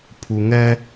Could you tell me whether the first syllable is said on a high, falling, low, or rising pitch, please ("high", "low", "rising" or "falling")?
low